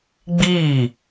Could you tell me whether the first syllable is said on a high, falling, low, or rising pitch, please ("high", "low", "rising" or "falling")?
falling